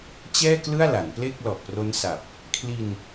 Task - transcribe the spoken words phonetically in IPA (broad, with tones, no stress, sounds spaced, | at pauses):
t͡ɕ ɛː˥˩ k l ɯ˥˩ a̯ l a˩˦ n p l e˥˩ k̚ l ɔ˨˩ ʔ p r o˦˥ n s a˨˩ p̚ | kʰ l i˧ n